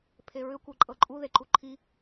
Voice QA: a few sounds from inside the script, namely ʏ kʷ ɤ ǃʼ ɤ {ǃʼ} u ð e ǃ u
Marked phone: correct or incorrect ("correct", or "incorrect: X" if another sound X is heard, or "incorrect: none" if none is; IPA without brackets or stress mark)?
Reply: correct